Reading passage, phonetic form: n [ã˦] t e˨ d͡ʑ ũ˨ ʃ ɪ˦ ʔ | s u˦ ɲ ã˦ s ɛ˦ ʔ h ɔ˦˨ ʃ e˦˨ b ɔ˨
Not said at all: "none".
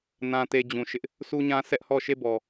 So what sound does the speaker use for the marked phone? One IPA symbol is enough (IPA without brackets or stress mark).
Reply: ã˨